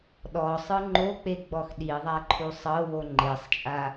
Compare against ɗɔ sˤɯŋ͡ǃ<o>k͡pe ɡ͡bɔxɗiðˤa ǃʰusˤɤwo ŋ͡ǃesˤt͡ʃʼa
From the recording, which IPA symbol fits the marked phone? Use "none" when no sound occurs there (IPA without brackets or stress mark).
o